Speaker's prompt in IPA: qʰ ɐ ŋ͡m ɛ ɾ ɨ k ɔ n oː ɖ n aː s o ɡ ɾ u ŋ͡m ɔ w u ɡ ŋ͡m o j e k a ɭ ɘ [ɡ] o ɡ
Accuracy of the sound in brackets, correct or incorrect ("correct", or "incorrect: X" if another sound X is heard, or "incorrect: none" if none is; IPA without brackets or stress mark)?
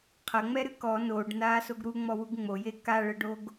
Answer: incorrect: ɖ